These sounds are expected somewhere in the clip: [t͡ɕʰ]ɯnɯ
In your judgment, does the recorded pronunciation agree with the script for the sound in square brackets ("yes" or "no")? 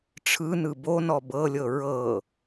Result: no